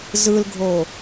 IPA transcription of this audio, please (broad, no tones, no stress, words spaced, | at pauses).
zɯlɡʱo